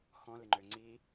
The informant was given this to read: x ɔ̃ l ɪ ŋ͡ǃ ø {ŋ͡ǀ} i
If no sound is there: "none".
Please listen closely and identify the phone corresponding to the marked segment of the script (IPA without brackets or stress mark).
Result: ŋ͡ǀ